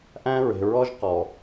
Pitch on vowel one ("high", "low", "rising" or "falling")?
high